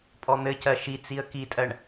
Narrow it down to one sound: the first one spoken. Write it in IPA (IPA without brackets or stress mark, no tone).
pʼ